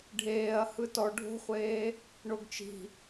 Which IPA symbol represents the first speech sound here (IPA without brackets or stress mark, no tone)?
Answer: ɖʱ